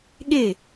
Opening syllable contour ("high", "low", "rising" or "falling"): falling